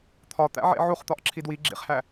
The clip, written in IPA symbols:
t̪ʰ ɒ t̪ æ̰ ʕ ḛ ʕ u χ t̪ ɒ ʔ ǁʰ i d w i ɡ͡ǁ ḭ χ h æ

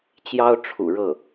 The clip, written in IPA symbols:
t͡ɕ j ɑ˥ ʊ̯ ʈ͡ʂʰ ṵ˨˩ ɻ ɤ˥˩

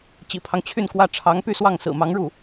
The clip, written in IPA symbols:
t͡ɕ ḭ˨˩ pʰ ɑ˦ ŋ t͡ɕʰ y˥˩ n k w ä˥ ʈ͡ʂʰ ɑ˧˥ ŋ p y˥˧ s w ɑ˥˩ ŋ s ɹ̩˨˩ m ɑ˧˥ ŋ ɻ u˥˩

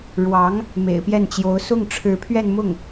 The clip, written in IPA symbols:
ɻ w ɑ˧˥ ŋ | m ḛ˨˩ ɪ̯ p j ɛ˥˩ n t͡ɕ j o˧˥ ʊ̯ s ʊ˥˩ ŋ ʈ͡ʂʰ ɻ̩˧˥ pʰ ɥ ɛ˥˧ n m ʊ˥˩ ŋ

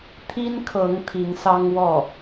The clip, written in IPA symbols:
t̪ʰ i˥ n kʰ ɤ˧˥ ŋ t̪ʰ i˧˥ ŋ s ɑ˥ ŋ w ɔ˥˩

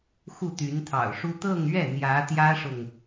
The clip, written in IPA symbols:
x u˥˩ t̪ y˧˥ n t̪ʰ ɑ̰˨˩ ʊ̯ ʂ u˥ t̪ ɤ˥˧ ŋ ɥ ɛ˥˩ n̪ j ä˧˥ t̪ j ä˥ ʂ ʊ˨ ŋ

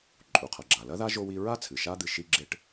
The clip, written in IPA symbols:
ǃʼ u˩ qʰ ɐ˩ ɡ͡ǁ a˩ l ɐ˥ ð a˥ ʒ o˥ w i˦ ɹ a˥ t͡sʰ ɨ˩ ʃ a˦ d̪ ɨ˨ ʃ i˦ ɡ͡ǁ e˦ ʈ

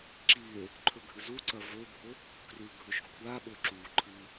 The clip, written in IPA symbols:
ǁ i e̯ | ǃʰ ɵ ɡʱ ɨ z u ǀ ɐ v ɵ bʱ o | k r ʉ ɡʱ ɵ ʃ kʷʰ a ɓ ɵ ǁ u ǃʰ ɨ

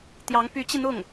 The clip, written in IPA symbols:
t̪ j ɑ˧˥ ŋ p y˧˥ t͡ɕ i˧ n̪ ʊ˥˩ ŋ

